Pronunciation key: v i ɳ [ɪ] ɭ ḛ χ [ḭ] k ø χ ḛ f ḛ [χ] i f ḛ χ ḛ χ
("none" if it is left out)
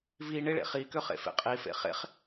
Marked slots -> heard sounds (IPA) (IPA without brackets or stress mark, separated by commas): ɪ, i, qʼ